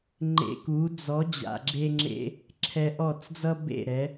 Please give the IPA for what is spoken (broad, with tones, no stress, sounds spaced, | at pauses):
ŋ͡ǃ ḛ˧ k u˩˥ d͡z ɔ˩˥ d͡ʑ a̰˩ ɡ͡ǁ e˧ ŋ͡ǁ ḛ˧ | ǁʰ ɛ˧ ʔ ɔ˥˩ t͡s d͡z ʌ˥ b ḛ˥˩ ɾ ɛ˩˥